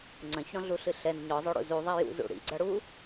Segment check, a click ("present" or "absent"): present